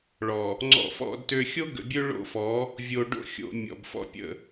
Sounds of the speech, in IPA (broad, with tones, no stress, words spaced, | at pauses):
ɭɔ˨ | ŋ͡ǀɔ̰˦fɔ̰˦dtø˦ xʲo˦ɡə̰˨bʲø˦ ɭo̰˦fɔ˨˦ | vʲo˨ɖo̰˦˨xʲo̰˨ mʲɔ̰˨bfɔ̰˦pʲə̰˦˨